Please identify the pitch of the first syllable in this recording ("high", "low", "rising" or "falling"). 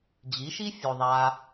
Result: rising